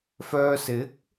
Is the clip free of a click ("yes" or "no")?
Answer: yes